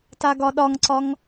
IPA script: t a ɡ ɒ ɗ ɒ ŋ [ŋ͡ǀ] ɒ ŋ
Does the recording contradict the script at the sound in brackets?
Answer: yes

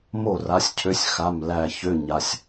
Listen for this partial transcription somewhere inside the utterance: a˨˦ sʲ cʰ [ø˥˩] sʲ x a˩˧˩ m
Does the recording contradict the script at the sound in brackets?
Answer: yes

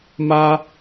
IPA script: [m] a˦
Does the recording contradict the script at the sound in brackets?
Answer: no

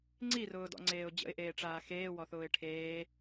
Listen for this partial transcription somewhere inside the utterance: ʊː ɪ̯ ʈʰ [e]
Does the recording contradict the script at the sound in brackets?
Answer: yes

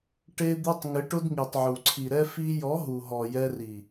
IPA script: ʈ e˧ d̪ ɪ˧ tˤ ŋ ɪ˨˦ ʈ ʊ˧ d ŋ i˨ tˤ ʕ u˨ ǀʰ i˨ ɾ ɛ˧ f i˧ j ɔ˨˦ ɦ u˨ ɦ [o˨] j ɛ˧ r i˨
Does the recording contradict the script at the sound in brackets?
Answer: yes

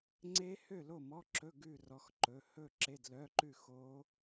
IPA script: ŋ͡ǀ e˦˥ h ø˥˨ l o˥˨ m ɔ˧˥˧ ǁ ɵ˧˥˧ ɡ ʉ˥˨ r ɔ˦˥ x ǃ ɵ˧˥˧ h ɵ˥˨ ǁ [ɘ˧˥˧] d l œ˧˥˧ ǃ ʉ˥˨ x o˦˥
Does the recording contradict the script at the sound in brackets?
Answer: yes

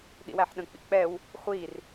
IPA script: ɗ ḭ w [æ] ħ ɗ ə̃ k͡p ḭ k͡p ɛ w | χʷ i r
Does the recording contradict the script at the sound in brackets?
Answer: no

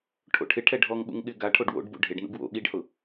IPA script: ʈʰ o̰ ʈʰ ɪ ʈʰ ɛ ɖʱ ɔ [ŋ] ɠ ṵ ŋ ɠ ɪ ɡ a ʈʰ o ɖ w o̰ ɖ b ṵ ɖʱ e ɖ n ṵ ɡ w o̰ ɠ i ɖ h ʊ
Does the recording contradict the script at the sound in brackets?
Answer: no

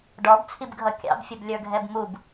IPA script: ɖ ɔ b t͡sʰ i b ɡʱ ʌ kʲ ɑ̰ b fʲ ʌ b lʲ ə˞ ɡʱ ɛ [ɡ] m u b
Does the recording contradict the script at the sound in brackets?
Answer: yes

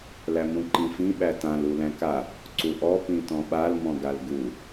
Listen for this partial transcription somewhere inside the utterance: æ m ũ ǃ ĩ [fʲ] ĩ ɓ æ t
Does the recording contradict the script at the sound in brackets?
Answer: yes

